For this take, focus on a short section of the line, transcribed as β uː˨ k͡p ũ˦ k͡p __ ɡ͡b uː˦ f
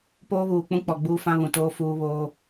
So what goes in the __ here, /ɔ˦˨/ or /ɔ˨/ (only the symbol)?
ɔ˨